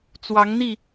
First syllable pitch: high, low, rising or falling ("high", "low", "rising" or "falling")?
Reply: rising